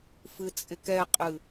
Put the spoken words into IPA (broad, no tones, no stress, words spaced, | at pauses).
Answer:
fɨt͡sʼɪkɛqʼɨ